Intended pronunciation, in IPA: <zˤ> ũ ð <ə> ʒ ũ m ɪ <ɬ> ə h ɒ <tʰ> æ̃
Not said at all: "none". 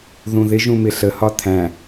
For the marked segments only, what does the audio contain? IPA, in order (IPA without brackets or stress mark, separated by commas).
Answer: ð, ɪ, ɬ, tʰ